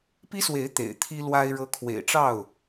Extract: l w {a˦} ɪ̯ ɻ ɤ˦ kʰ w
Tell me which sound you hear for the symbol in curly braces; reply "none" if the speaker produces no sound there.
a˦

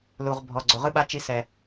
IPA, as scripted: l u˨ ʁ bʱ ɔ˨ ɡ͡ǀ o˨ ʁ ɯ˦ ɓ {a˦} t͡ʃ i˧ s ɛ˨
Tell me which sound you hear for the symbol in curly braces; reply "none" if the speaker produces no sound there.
a˦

